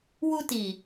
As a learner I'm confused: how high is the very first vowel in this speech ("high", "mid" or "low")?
high